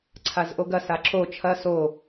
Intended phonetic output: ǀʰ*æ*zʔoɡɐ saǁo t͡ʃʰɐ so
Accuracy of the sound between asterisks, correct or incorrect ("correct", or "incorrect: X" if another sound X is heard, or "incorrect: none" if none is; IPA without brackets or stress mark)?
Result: incorrect: a